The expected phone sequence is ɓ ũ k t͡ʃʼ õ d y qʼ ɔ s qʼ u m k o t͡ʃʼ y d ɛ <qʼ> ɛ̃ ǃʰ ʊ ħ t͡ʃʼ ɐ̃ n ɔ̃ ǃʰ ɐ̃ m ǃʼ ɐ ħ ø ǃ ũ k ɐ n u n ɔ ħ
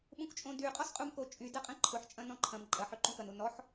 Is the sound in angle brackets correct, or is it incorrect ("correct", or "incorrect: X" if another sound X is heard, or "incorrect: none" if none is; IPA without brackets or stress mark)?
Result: correct